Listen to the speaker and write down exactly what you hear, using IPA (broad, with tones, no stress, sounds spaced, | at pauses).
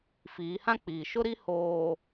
f iː˨˦ h ã˦ k͡p iː˨ ʃ ʊ˦ ɾ i˦ h oː˨